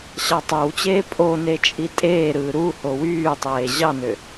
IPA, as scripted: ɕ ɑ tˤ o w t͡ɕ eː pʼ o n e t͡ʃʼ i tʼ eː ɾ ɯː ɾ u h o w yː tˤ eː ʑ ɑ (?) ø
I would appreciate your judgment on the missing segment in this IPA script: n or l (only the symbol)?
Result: n